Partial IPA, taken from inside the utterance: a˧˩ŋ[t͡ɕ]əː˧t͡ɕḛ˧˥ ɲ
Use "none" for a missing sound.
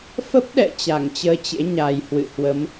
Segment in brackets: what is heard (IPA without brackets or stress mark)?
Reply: t͡ɕ